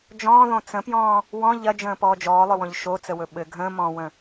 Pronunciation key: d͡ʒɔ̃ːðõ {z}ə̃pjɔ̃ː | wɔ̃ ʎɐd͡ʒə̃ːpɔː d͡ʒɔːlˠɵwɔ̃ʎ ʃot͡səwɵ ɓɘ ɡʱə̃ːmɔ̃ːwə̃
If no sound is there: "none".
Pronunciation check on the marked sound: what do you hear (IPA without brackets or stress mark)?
t͡s